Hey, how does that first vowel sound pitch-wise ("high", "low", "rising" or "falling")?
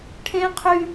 high